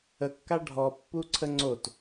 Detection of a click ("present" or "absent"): present